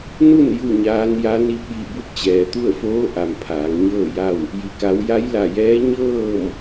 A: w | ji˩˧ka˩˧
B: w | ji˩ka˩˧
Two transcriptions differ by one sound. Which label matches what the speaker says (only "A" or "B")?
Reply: B